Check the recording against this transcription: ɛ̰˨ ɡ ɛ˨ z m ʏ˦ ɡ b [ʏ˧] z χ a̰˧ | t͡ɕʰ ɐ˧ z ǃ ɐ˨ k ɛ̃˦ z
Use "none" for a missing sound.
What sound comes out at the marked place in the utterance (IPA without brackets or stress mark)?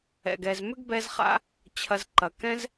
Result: ɛ˧